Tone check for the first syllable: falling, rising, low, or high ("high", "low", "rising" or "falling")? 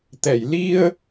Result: low